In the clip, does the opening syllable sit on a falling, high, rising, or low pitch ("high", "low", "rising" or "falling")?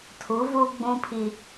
rising